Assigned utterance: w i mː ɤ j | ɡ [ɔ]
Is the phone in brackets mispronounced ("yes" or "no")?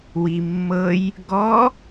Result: no